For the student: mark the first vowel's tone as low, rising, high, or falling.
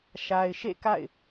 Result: low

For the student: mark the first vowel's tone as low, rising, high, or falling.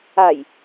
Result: low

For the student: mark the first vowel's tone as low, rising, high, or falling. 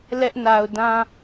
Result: high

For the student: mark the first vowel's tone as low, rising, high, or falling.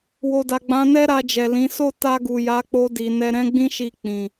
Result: low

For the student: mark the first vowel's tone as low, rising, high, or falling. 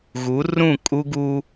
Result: rising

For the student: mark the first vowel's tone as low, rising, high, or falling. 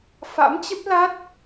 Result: rising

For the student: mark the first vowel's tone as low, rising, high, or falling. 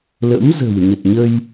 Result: rising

